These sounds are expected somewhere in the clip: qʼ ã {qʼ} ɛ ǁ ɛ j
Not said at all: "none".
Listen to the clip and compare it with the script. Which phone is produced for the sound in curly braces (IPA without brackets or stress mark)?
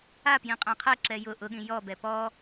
qʰ